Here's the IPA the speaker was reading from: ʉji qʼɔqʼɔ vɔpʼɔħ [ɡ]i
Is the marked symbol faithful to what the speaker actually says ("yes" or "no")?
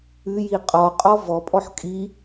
no